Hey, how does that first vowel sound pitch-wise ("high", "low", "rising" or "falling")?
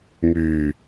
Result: low